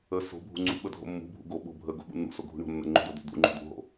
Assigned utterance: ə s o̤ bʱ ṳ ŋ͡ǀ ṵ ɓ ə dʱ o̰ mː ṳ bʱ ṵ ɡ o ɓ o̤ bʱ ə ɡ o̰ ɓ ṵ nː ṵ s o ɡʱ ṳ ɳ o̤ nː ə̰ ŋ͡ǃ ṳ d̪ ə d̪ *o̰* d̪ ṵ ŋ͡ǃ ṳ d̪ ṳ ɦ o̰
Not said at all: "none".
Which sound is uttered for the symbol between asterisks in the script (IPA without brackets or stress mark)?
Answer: o̰